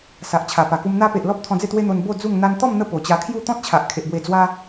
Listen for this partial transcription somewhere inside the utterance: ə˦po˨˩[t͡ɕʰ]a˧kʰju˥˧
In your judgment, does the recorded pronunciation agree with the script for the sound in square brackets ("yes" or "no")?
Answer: no